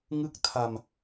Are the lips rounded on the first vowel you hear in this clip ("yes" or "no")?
no